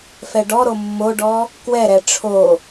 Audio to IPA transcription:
f ɛ ɖ ɔ ɾ o mː o ɖ ɔ | k w ɛ ɾ ɛ ʈ͡ʂʰ o

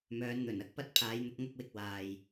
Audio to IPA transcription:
m œː˨˧ n n̪ ɵ˨˩ n ɐ˥ k̚ p ɐ˥ t̚ pʰ aː˨˧ j n̪ ʊ˧ k̚ ŋ ɐ˥ k̚ w ɪ˧ k̚ w aː˨ j

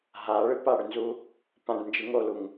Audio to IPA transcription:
ɦ a ɭ ɨ p a ɽ ʏ n z u | p ã ɖ n d͡ʒ ɨ ŋ o l u ŋ

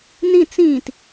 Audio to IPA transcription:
n ĩ t͡s ĩ t

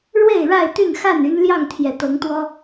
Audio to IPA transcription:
ɻ w e˥˨ ɪ̯ ɻ a˥˨ ɪ̯ t̪ y˥˨ n x a˥˨ n y˦ n l j ɑ˥˨ ŋ t̪ʰ j ɛ˨˩ t̪ ɤ˨˦ ŋ t̪ w ɔ˦

